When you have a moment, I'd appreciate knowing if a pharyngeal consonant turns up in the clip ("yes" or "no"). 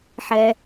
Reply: yes